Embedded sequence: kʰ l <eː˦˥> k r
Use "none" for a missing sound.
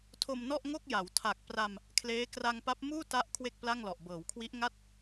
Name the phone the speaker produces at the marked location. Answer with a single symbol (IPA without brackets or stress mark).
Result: eː˦˥